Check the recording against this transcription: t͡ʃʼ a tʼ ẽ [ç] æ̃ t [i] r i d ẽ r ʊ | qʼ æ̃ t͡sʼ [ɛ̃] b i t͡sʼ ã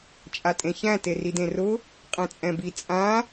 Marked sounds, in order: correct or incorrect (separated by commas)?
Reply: correct, incorrect, correct